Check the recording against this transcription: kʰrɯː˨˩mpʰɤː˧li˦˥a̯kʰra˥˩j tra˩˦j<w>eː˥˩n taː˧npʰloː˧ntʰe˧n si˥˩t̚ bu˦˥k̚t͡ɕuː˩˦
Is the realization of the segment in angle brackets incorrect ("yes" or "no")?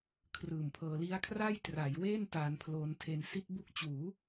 no